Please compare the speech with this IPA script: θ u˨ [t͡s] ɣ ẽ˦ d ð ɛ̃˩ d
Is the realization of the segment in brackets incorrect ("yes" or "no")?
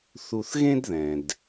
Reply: yes